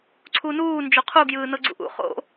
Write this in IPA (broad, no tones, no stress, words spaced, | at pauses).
ǀʰuːnuː nd͡ʒoqʰu ɡjɯːnɤɡ͡ǀṵʔṵ χo̰